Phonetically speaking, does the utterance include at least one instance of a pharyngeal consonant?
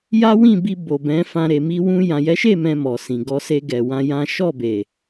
no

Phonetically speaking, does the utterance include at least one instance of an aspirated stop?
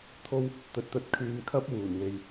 yes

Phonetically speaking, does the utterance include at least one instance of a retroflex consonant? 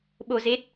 no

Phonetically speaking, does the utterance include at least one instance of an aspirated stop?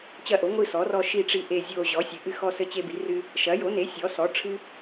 yes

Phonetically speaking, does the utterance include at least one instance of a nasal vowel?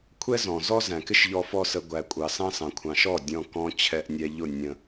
yes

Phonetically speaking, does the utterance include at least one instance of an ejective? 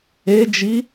no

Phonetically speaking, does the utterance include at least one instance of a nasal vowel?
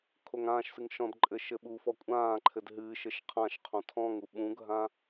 yes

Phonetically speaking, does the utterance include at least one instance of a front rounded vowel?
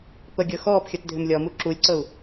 yes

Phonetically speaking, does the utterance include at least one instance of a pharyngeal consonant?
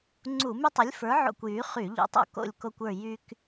yes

